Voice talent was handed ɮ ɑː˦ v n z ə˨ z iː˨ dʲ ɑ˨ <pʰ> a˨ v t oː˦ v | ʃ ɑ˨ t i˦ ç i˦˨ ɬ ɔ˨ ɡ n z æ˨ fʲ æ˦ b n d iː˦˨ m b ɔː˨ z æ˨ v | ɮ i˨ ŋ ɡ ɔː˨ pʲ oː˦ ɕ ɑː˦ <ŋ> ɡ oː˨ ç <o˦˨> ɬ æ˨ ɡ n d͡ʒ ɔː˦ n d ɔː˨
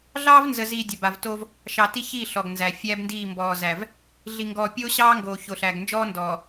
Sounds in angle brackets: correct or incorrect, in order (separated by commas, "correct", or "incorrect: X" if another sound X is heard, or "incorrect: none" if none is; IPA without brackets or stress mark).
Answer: incorrect: b, correct, incorrect: o˨